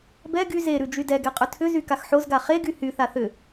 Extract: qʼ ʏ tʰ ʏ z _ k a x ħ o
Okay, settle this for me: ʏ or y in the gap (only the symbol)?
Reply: y